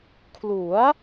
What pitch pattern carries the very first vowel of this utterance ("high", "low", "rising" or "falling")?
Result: rising